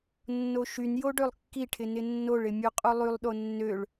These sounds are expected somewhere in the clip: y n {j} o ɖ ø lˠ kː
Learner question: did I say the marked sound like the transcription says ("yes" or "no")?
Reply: yes